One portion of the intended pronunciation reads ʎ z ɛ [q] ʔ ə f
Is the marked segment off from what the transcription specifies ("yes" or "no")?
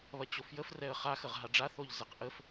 no